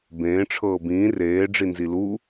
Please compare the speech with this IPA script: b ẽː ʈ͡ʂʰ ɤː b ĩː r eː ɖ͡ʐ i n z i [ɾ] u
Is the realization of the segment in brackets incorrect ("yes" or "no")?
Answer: yes